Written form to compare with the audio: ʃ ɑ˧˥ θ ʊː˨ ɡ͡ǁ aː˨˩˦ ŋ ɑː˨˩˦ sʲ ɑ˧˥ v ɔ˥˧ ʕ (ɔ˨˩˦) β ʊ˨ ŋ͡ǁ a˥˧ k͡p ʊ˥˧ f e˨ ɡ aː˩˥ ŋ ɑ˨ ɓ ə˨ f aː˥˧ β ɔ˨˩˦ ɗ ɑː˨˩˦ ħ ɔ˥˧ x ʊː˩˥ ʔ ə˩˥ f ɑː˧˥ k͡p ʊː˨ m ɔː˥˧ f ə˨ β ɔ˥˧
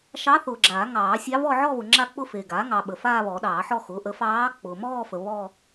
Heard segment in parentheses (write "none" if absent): ɔ˥˧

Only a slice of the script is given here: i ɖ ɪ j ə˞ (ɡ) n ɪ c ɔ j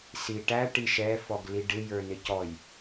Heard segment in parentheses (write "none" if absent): none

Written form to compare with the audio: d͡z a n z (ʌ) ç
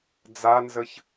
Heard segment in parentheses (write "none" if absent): ə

